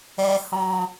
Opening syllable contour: low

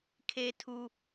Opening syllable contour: low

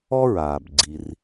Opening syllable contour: high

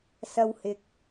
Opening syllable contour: high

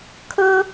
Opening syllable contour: high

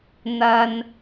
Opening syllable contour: low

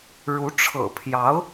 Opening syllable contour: rising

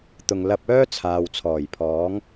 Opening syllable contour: low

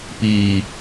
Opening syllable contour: low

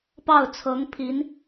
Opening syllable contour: falling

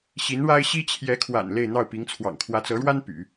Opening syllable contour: rising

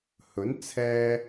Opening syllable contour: rising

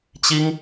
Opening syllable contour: high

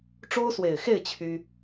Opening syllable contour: high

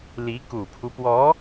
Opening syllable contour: rising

